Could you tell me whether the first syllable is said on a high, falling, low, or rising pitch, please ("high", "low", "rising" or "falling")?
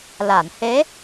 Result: low